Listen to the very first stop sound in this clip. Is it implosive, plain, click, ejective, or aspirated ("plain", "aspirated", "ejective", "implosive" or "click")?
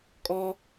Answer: ejective